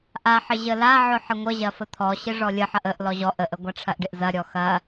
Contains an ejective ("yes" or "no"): no